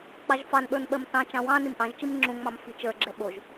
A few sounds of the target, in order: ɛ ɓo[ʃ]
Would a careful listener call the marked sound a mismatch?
yes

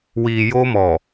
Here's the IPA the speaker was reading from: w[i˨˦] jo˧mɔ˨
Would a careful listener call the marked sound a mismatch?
yes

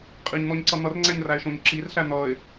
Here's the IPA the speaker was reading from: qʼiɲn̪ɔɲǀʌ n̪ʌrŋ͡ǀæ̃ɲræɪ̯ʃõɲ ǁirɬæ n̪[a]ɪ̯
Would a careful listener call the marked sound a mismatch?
yes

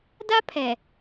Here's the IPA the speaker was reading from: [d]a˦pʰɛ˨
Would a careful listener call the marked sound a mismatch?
no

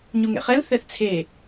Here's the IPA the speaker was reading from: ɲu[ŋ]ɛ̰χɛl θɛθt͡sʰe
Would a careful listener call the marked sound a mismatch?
no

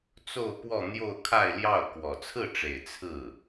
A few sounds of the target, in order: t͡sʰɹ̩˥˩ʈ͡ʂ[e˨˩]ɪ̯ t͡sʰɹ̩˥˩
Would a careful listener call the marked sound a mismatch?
no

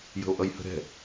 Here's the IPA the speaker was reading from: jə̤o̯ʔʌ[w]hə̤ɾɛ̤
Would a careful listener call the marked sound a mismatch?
yes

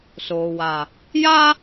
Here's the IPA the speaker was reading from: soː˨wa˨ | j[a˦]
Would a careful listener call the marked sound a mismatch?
no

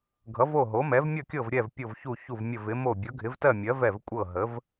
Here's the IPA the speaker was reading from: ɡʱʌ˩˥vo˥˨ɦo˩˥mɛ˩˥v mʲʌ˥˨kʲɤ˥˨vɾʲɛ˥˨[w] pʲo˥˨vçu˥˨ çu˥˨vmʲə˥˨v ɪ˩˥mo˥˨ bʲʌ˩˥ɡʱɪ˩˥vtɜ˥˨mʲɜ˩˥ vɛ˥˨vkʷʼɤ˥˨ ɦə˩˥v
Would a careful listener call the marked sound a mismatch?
yes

